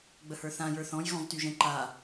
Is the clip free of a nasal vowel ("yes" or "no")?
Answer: no